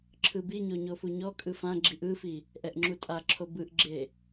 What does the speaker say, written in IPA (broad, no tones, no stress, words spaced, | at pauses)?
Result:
ǁʰɯbiɲo ɲofuɲɔkʼɯ fãɡ͡ǁiʔ ɯfi | ʔɛʔŋ͡ǁutʼaǁʰo bɯʔɡ͡ǁe